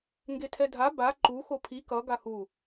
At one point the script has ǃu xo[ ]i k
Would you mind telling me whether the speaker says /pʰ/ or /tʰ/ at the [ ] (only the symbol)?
pʰ